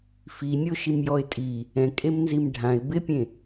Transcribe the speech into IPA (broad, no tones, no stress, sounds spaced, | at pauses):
f i nʲ o ʃ i m j ɔ ɪ̯ tʼ i | ɛ̃ kʼ e m n z i m ɖʱ ã ɪ̯ b ɪ pʲ ẽ